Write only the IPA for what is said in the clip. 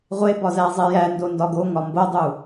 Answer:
ʁʷ e b ɒ z æ zˤ e j æ n d o n d ɒ ɡ o ŋ ɒ m b o dˤ u

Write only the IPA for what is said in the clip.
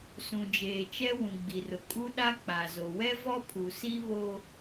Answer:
s ũ˨ d͡ʒ eː˨ t͡ʃ ɛ˦ w ũ˨ ɡ͡b i˨ r ʊ˨ kʼ u˦ ɗ a˦ k͡p a˨ z o˨ w ɛ˦ v ɔ˦ pʰ u˨ s i˦ β o˦

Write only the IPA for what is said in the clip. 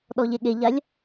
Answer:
ɗ ɔ ʎ e ɠ e ʎ a lʲ

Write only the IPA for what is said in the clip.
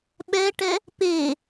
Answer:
ɓ ɛ ʈ ɛ | p e

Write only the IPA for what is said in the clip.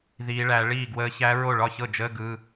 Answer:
ð iː˧˥ ɭ æ˧˥ ɭ iː˥˩ ɡ w əː˧˥ ç æ˧˥ ɹ o˥˩ ɭ ɒ˥˩ ç ɤ˥˩ d͡ʒ əː˧˥˧ ɡ ɯ˧˥˧

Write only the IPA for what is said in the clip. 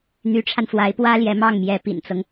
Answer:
n̪ y˧˥ ʈ͡ʂʰ a˧ n f w a˧˥ ɪ̯ p w ä˥ l j ɛ˧˥ m ɑ˥˩ ŋ m j ɛ˧˥ p ḭ˨˩ n t͡s ɤ˦ ŋ

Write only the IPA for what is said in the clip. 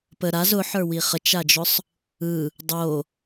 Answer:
p ə ɾ a z ʊ ħ ə˞ w i χ ə t͡ʃ a d͡ʒ ʊ sˤ | ɯ | dˤ o

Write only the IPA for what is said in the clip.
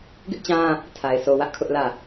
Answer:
ɡ ɪ˦ ʔ t͡ɕ ã˦ | tʰ a˨ ɪ̯ sʰ o˨ w ä˦ ʔ kʰ ʊ˦ ʔ l ä˦˨

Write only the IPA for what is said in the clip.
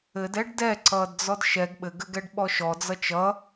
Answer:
ɘ d ɛ ɖ d ɛ ǀ ʌː d d͡z ɔ d ʃ ɛ ɡ ɓ ɘ ɡ ɘ ɡ ɛ ɖ ɓ ɔ ʃ ɔ d͡z ʌ t͡ʃ ʌ

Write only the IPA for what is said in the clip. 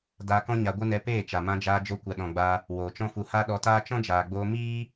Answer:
d aː˧ k ɔ̃˦ ɲ a˧ ɡʷ ɨ˦ n ɛ˧ p eː˦˨ t͡ʃ a˨ m ã˧ d͡ʒ aː˧ d͡ʒ o˧ kʷ a˨ ɗ ɔ̃˨ ɡ͡b a˧ | w oː˨ t͡ʃ ɔ̃˦ f u˧ h a˦ ɗ ɔ˧ t aː˦ t͡ʃ ɔ̃˦ d͡ʒ aː˨ ɡ͡b oː˧ m iː˦

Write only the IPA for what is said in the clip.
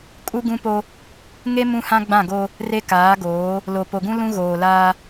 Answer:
kʼ u˦ ɡ ũ˦ p o˦ | ŋ e˦ m ũ˦ h ã˦ ɡ͡b ã˦˨ ɡ o˦ | r e˦ k aː˨˦ ɡ oː˨˦ | l o˨ p o˨ ɡ ũ˦ l ũ˦ ɣ oː˨ l aː˦

